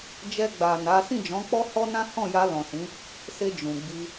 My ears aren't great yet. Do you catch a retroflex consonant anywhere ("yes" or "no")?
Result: no